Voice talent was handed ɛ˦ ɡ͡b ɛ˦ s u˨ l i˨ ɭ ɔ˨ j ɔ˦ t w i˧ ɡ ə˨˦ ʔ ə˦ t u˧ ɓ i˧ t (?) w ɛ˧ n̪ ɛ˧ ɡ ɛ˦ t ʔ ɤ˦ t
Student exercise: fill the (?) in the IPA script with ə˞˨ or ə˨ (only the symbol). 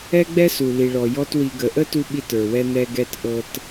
ə˞˨